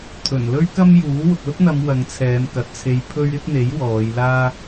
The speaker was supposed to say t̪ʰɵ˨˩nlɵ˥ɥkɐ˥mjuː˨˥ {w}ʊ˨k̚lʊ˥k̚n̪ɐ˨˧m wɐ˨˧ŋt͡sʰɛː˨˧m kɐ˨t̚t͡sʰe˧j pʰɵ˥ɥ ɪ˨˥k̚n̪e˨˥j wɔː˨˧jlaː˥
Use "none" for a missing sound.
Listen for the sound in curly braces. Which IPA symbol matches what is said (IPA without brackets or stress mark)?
w